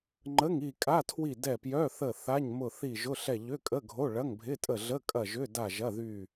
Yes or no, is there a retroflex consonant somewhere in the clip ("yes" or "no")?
yes